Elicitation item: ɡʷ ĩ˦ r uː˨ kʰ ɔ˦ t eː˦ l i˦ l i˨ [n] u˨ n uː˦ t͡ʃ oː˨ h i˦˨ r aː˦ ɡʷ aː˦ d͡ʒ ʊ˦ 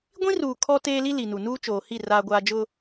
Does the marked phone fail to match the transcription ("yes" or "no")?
no